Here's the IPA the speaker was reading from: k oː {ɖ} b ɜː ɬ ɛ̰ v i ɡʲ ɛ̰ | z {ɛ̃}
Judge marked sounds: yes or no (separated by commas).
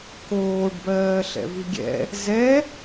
yes, no